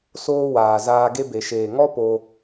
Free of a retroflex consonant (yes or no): yes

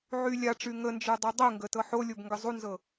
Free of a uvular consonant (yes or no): yes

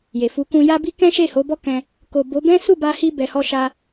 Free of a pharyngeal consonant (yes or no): yes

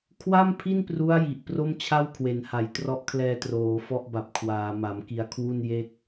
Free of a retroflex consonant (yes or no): yes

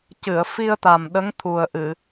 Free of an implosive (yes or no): no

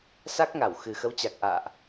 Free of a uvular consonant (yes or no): yes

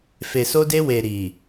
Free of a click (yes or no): yes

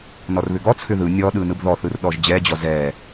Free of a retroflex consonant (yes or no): yes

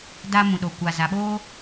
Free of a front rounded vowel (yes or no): yes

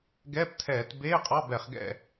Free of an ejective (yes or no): no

